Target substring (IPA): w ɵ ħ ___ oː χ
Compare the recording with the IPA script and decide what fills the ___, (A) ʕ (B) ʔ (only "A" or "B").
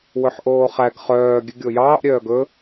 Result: B